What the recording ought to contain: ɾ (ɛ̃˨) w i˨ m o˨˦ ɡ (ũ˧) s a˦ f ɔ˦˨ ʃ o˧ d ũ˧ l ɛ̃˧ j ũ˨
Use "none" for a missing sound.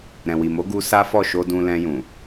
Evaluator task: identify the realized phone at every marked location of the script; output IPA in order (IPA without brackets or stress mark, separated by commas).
ɛ̃˨, u˧